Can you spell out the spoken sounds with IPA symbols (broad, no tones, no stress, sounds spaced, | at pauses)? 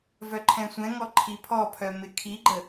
v œ ǃʰ ɛ̃ sʷ ɛ̃ ŋ ɔ ǃʰ i pʰ ɔ pʰ œ m ɪ kʰ i ɡ͡ǃ ə